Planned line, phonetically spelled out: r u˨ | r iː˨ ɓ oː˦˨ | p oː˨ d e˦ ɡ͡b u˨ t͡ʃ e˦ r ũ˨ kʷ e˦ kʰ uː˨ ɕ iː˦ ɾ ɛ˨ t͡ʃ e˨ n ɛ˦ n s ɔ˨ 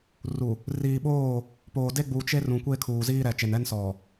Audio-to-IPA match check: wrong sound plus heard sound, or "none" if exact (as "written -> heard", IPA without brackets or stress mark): ɕ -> z